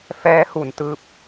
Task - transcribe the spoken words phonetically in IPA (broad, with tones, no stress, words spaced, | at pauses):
fɛː˦˥hu˨˩n tɯː˥˩p̚